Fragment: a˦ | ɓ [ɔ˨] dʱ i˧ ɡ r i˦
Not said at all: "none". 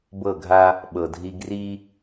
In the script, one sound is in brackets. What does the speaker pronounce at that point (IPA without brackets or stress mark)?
ɤ˨